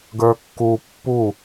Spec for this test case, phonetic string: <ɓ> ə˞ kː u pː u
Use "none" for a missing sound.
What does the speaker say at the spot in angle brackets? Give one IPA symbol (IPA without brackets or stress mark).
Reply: ɡ